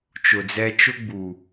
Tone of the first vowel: low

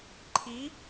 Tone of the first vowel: rising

